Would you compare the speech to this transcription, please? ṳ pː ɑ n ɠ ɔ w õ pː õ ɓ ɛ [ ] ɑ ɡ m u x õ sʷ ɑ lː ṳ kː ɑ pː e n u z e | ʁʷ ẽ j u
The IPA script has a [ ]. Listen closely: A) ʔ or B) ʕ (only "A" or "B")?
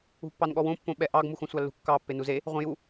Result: A